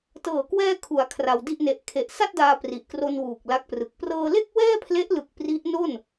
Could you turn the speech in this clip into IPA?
t ɤː˨˩ k w ɛː˧ kʰ u˩˦ a̯ kʰ r a˧ w d i˥˩ ʔ n e˦˥ ʔ kʰ e˨˩ ʔ s a˥˩ t̚ d aː˧ p r i˨˩ ʔ k r o˧ n w uː˨˩ k̚ l a˦˥ k̚ p r ɯ˨˩ k̚ p r ɤː˧ l e˥˩ k̚ w ɛː˥˩ pʰ l e˦˥ ʔ l ɯ˨˩ k̚ p r i˦˥ ʔ n o˥˩ n

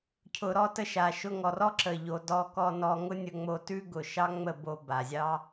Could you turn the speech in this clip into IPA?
cʰ ʊ˨ ɾ ɔ˧ t ə˧ ʃ a˨ ʃ ʊ˧ ŋ ɔ˨ r ɔ˦ ǁ ə˨ ʎ o˨ d ɔ˧ k ɔ˧ n ɔ˧ ŋ ʊ˦ nʲ ə˧ ŋ͡m o˧ t ʉ˦ ɡ ʊ˨ ʃ ɑ˦ ŋ͡m ə˦˨ b o˧ b a˨ zʲ ɑ˦

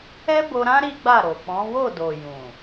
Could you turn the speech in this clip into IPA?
ɛ˦ b o˧ ɾ ã˦ ɾ i˦ ɡ͡b a˦˨ ɾ o˨ k͡p ɔ̃˨˦ w o˦˨ d o˨ j ũ˨

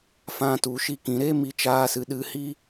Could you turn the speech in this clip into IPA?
f ã˧ t u˨ ʃ i˧ k ĩ˨ ɾ e˦ m i˧ t͡ʃ aː˧ s ɨ˨ ɗ ɨ˧ h i˦

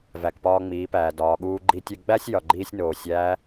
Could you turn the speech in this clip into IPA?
v æ˩ k p ɒː˧ ŋ͡m iː˩˧ p æː˩ d ɒː˩ ɠ uː˧ ɡ͡ǃ i˧ tʲ e˧ ɡ͡b æ˥ sʲ j ɒ˩ ɡ͡ǃ iː˧ sʲ n oː˩ sʲ æː˧˥

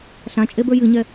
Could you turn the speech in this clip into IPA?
ɬ ã t͡ʃʼ e b ə˞ j ɨ ɲ ɛ

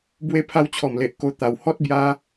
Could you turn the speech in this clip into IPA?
b w e˧ pʰ a˧ w t͡ɕʰ ɔ˨˩ m l e˨ ʔ k o˧ t̪ a˨˩ w h ɔ˦ t̚ b j a˧

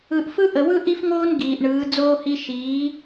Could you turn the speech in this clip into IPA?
ɯ˨ ʔ f ɯ˦ ʔ ə˨ w ɯ˦ ʔ i˦ f ŋ oː˦ n ɡ iː˨ ʔ ɳ ɯː˨˦ d͡z oː˦ h i˦ ʃ iː˨˦

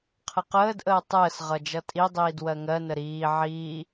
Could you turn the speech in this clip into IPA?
qʰ ə q əː d ʔ əː tˤ əː s ʁ ʌ d͡ʒ ʌ tʼ i dˤ iː d w ɜ ŋ ɜ n ə ɾ iː ʕ iː

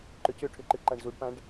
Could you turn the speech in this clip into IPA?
ǃ ʏ c ʏ ʈʰ ʏ ǃ ɨ ǃ a ɳ z u ɖ p ã ɖ

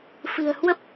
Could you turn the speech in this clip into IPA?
f ɨ̤˨˩ ə̯ h w ə˦˥ p̚

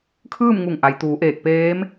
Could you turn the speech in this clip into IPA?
kʰ ɯː˥˨ m ŋ u˧˩ ŋ ʔ a˩ j t̪ uː˩˧ ʔ eː˧˩ k̚ p eː˧˥ m

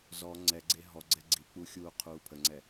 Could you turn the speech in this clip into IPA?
z ɔ ŋ͡ǀ ɛ ɡ͡ǀ e ɦ ɔ ɡ͡ǀ ɛ ɡ͡ǀ i k͡p u xʲ uː qʰ uː pʰ ə ŋ͡ǀ ɛ

